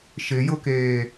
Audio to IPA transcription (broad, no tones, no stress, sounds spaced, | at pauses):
ʃ ɪ j ʊ k eː